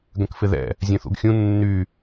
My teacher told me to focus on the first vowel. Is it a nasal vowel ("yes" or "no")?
yes